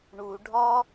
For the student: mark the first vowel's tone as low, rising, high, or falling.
low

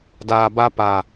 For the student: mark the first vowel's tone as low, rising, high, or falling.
low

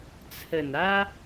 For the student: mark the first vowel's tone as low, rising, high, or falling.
low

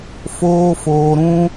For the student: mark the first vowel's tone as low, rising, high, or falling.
high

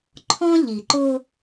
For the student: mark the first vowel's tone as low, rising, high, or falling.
high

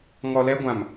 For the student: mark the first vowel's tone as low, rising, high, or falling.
low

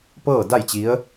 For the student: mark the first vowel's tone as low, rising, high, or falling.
falling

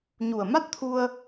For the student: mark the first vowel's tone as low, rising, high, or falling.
low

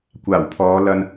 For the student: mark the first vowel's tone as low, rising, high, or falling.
low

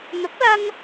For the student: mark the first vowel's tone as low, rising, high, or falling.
rising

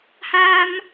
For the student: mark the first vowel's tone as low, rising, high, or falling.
high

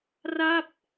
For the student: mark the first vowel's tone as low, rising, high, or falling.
falling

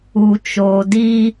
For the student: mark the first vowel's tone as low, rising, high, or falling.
low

